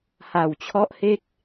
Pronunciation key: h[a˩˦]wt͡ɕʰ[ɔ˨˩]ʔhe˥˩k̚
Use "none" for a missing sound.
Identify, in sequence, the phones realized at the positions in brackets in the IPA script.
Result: a˨˩, ɔ˦˥

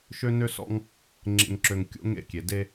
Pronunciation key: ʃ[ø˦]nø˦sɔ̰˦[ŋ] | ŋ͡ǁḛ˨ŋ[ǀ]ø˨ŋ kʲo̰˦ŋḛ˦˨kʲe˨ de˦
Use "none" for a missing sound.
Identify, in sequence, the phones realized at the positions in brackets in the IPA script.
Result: ø˦, ŋ, ǁ

